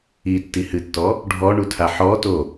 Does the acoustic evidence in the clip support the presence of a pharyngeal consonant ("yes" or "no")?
yes